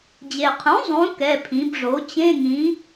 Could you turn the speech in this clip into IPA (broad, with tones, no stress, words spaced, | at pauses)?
d͡ʑe˩qʰũ˩˥ zˤũ˩˥ kɛ˩˧˩pʰĩ˩˧bʐo˩˥ t͡ɕẽ˧˥˧ŋĩ˩˥